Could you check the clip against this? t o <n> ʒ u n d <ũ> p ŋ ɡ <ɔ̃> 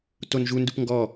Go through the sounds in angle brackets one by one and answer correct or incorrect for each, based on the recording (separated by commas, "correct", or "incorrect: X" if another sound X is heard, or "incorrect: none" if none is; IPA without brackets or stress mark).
correct, incorrect: u, incorrect: ɔ